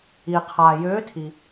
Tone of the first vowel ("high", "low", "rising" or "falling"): low